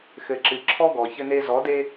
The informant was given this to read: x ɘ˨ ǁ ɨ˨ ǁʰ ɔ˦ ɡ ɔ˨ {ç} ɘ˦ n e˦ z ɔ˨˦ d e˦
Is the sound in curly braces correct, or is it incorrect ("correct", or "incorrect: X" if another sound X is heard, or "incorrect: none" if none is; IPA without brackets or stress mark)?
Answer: correct